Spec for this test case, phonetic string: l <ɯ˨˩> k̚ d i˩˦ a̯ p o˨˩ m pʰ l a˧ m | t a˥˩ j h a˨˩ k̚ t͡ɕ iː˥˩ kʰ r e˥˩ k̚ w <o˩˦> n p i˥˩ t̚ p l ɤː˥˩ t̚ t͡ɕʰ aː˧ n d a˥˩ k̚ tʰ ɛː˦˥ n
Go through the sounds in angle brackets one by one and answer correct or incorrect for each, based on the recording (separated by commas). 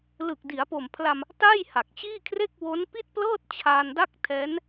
correct, incorrect